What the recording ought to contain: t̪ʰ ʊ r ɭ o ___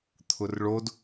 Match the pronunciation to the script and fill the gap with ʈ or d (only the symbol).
d